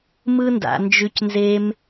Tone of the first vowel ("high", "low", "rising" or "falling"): high